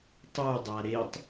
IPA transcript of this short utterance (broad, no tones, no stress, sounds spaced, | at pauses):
tˤ u dˤ a ɾ e tˤ